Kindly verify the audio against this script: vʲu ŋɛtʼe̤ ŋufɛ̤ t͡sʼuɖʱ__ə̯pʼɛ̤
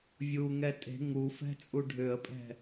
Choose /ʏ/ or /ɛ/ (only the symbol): ʏ